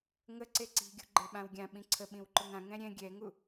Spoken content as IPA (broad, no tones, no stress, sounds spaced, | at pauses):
ŋ ə ǀ e ǀ i̤ ɡʲ ṳ ɡ͡ǃ e ɓ ã w ɡʲ ã ɓ ĩ ǀʰ ə ɓ ĩ w ǃ ʊ ŋ ã ŋ ɛ̃ ɾʲ ɛ̃ ɡʲ ɛ ŋ u